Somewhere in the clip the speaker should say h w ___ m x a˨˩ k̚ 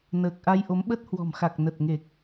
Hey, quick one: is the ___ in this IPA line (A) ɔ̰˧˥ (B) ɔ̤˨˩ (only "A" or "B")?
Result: B